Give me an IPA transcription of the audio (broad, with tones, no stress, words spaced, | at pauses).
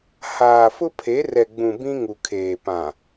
haː˨fʊ˦pʰe˨˦ rɛ˨ɡ͡bũ˨ bĩ˦ŋu˨kʰeː˨ pã˨